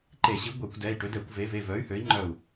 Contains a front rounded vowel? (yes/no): yes